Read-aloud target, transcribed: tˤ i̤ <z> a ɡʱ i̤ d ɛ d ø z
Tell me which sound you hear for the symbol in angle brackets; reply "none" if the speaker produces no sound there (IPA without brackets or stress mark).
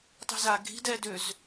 z